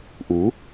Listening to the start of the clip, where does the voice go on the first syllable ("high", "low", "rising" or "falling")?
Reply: rising